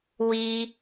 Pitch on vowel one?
high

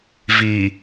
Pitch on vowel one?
low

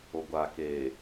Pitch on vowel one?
low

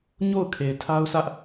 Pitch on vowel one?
falling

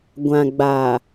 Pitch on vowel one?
low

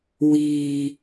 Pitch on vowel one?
low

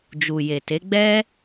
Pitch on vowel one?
low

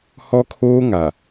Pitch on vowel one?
high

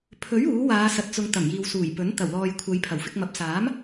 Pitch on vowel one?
rising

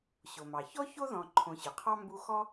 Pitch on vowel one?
low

